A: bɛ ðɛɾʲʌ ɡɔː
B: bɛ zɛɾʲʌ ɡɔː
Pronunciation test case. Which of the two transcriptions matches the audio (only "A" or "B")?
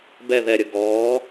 A